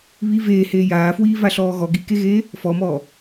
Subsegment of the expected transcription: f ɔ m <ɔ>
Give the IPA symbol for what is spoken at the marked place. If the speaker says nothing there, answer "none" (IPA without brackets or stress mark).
ɔː